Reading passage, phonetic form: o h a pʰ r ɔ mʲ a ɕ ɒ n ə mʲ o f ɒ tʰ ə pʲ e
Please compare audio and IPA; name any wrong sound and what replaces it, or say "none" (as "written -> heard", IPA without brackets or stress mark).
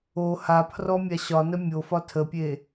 none